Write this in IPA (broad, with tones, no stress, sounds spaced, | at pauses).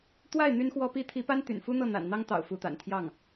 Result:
t̪ w a˥˩ ɪ̯ n̪ y˥ n x w ɔ˥ p i˥ t̪ʰ i˧˥ p a˥ n t̪ y̰˨˩ n f u˥ n̪ ɤ˥˩ n̪ a̰˨˩ n n̪ ɑ˥ ŋ t̪ ɑ̰˨˩ ʊ̯ f u˧˥ t̪ a̰˨˩ n t̪ʰ j ɑ˥˩ ŋ